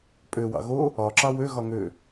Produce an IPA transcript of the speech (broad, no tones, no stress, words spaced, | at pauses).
pʼøwɑ̰ ɣo | ɒǁɑ wøɣɒ ŋø